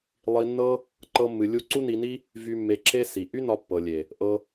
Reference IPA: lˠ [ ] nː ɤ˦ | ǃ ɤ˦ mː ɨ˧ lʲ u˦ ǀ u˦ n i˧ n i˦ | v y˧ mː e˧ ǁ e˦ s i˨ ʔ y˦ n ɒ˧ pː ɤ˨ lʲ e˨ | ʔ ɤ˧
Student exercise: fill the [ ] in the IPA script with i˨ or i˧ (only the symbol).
i˧